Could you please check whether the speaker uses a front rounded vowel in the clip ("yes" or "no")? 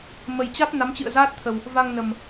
no